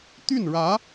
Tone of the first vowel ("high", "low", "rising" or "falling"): falling